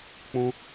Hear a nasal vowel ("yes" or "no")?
yes